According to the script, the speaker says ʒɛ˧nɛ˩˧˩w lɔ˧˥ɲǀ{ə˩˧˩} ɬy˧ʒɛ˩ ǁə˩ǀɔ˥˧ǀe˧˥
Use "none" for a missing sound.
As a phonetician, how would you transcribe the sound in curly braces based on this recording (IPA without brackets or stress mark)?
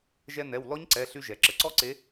ɛ˩˧˩